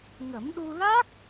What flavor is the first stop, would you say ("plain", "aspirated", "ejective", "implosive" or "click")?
implosive